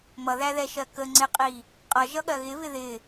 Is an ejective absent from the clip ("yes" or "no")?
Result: no